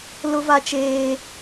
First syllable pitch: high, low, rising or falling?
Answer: high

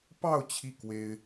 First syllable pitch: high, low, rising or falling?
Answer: falling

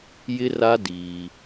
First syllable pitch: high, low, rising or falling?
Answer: high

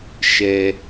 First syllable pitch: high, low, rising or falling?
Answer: low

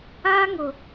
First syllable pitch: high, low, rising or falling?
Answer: high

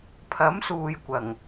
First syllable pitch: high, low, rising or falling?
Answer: rising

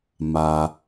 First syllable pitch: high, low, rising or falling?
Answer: low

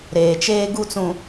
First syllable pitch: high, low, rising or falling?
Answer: low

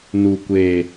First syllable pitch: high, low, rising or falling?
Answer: low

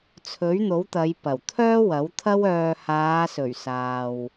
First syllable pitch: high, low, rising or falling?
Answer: rising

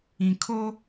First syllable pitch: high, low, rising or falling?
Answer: low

